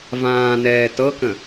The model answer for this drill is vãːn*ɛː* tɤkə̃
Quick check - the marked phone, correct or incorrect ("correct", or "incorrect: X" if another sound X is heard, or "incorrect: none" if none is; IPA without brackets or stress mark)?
correct